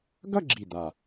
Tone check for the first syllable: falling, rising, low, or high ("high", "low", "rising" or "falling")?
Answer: falling